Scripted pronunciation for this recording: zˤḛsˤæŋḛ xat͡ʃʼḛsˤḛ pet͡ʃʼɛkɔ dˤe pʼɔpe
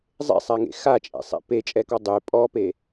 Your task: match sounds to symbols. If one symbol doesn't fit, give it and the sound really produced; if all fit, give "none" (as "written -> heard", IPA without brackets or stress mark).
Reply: none